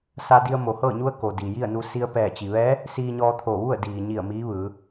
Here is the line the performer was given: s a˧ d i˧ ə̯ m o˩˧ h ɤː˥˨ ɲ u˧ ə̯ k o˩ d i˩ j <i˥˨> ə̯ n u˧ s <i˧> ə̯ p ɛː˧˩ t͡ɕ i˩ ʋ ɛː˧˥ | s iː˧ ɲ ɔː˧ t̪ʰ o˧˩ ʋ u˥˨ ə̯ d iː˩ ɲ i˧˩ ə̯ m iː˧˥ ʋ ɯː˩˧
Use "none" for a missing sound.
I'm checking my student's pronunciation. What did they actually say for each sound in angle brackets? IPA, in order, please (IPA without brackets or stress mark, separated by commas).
i˥˨, i˧